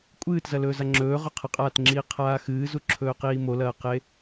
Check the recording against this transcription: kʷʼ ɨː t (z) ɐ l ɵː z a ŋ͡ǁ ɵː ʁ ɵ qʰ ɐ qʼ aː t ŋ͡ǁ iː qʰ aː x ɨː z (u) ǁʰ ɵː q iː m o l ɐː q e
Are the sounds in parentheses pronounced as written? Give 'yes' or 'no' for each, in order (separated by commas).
yes, yes